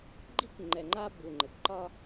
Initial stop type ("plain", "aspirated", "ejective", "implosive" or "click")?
click